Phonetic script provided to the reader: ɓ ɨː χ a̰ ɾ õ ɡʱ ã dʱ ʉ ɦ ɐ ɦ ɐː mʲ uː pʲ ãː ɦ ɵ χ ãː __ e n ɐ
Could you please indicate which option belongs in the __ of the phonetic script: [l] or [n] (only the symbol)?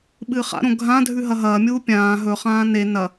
n